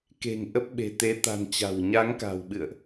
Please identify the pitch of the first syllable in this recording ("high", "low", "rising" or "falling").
low